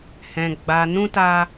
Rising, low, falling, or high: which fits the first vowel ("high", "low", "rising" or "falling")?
low